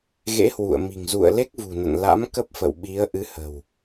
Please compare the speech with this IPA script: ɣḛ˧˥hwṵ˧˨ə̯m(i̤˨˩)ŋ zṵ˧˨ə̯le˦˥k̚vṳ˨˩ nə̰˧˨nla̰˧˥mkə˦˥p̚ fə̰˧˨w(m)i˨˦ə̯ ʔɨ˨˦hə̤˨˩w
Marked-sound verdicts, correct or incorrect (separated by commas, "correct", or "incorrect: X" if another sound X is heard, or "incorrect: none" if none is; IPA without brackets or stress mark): correct, incorrect: ɓ